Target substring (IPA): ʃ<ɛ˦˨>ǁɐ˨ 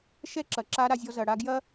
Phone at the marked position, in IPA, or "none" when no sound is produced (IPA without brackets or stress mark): ɛ˦˨